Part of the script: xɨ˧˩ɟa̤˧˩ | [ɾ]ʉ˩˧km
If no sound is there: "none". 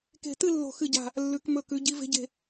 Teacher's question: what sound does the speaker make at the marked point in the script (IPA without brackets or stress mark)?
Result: lː